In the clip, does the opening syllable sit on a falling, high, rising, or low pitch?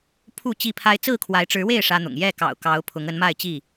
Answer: falling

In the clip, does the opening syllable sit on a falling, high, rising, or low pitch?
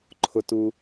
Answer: low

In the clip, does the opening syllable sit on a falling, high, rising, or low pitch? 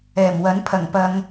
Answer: low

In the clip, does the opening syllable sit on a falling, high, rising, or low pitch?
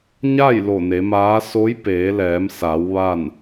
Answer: falling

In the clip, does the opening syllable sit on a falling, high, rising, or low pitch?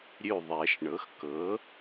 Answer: falling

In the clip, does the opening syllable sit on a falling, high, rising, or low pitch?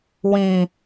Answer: low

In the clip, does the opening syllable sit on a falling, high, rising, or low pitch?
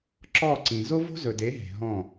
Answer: falling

